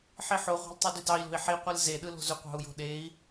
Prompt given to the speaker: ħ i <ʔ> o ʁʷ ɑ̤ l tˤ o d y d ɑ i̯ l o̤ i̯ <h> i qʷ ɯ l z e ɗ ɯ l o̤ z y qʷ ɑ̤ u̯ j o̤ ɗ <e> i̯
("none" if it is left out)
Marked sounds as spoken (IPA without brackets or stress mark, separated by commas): ħ, ħ, e